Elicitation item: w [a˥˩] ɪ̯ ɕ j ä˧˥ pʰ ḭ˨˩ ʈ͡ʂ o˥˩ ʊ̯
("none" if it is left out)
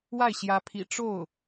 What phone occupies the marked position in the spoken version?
a˥˩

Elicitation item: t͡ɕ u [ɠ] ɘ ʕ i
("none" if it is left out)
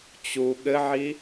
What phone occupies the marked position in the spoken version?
ɠ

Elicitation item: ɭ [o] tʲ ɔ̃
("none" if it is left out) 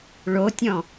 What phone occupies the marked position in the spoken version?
o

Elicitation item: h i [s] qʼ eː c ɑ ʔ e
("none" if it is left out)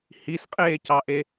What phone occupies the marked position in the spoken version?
s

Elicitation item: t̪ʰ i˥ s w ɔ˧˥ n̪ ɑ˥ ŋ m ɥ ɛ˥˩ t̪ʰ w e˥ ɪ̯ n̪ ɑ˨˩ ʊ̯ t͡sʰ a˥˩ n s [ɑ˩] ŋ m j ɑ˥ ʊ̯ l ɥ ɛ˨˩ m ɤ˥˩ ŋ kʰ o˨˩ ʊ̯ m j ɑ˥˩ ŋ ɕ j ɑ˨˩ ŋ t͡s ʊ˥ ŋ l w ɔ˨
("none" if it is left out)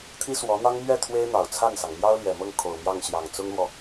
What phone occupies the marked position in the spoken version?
ɑ˩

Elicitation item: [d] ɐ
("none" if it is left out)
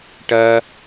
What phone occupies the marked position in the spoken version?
ʈ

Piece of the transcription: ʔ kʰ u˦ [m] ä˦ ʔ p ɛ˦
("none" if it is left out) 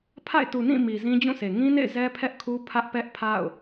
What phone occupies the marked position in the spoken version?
pʰ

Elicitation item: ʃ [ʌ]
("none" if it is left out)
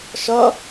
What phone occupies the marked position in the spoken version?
ʌ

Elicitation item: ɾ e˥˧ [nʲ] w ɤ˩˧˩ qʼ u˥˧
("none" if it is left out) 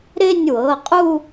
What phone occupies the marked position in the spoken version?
nʲ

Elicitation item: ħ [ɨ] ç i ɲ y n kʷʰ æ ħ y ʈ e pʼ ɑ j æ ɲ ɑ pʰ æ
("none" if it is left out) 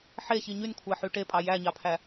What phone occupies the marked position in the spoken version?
e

